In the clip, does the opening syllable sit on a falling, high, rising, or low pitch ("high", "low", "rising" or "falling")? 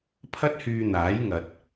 high